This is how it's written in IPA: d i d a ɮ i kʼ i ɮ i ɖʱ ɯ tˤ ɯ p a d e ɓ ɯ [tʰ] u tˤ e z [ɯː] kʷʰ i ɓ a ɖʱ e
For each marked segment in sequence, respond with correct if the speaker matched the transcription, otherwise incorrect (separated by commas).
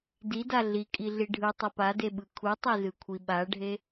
incorrect, incorrect